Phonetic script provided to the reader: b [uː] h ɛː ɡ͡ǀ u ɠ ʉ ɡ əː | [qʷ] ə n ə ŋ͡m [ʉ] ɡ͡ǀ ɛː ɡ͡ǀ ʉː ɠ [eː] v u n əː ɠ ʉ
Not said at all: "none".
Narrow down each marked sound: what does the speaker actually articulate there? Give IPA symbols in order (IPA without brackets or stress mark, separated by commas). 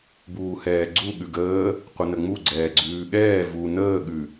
uː, qʷ, u, ɛː